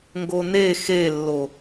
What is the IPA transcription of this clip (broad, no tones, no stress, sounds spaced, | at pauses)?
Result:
ŋ ɡ o n e x e lː o